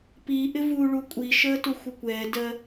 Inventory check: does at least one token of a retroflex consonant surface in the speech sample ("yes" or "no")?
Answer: yes